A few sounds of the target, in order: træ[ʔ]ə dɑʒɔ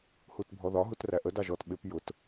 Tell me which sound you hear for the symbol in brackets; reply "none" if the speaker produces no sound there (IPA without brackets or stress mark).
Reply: ʔ